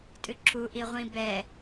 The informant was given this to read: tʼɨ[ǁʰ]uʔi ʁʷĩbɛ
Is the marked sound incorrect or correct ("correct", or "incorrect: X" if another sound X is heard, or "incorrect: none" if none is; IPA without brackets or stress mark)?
correct